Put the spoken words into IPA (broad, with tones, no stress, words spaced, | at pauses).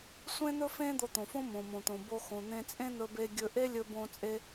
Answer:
sʷẽ˥n̪ɵ˥fẽ˥ d̪o˧t̪õ˩fõ˥ mõ˩mõ˩t̪õ˩ bo˧xõ˩n̪ẽ˧ t͡sʼẽ˥n̪ɵ˧be˧ɡʲɵ˧ ʔe˥ lʲɵ˧bõ˧t͡sʼe˧